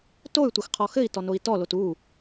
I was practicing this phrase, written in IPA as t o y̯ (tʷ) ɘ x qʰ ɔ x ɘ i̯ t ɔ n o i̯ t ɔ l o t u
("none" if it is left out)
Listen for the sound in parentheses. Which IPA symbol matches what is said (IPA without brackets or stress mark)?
tʷ